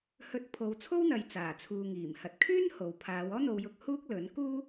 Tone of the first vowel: rising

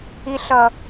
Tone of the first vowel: high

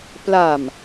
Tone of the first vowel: low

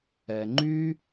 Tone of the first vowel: low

